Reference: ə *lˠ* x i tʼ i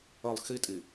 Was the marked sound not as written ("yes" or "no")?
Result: no